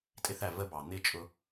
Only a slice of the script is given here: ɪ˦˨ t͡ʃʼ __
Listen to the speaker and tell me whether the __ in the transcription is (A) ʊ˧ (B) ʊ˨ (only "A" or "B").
A